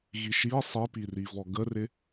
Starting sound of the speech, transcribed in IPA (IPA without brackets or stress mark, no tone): ɣ